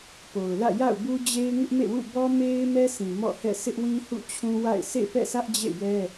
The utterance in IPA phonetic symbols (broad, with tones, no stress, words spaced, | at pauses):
po˨ʊ̯lä̰˦˨ ja̰˦˨ʊ̯bu˦d͡ʑe˦ɪ̯ ŋɪ˦ʔmḛ˦˨wṵ˦˨ bɔ˦me˦ɪ̯ mɛ˦sʰĩ˨ mɔ̰˦˨hɛ̰˦˨ sɪ˦ʔwĩ˦ hṵ˦˨t͡ɕʰũ˦wa̰˦˨ɪ̯ sʰḛ˦˨pɛ̰˦˨sä˦ʔ d͡ʑḛ˦˨jɛ˦